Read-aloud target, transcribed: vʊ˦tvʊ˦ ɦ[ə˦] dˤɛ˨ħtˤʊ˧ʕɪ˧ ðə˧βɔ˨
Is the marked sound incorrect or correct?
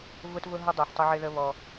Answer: correct